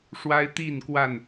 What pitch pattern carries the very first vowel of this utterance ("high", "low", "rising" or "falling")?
high